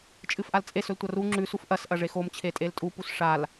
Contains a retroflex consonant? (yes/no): yes